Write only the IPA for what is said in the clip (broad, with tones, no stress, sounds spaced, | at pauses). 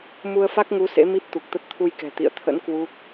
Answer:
m u˧ ə̯ f a˦˥ k̚ ŋ u˨˦ s ḛ˧˥ m i˦˥ p̚ t̪ u˨˩ k̚ t̪ ə˦˥ t̚ t̪ʰ u˧ j k ɛ̤˨˩ t̪ ḭ˧˨ ə̯ t̪ʰ ə̰˧˥ n k w u˦˥ k̚